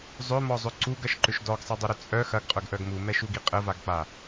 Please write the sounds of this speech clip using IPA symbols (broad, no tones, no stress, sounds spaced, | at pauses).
zˤ ʏ m ɔ zˤ ʏ ǀ u ɡ ɐ ʃ ǃ ʏ ʃ d ɔ ɡ sˤ ɛ dˤ ʏ ɾ ʏ t͡sʼ œ x ɐ ɡ qʼ œ ɡ ʔ œ ɡ m u m ɛ ʃ u ɡ i qʼ ə v a ɡ k͡p a